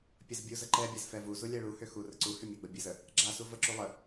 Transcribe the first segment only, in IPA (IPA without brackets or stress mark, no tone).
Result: pʲ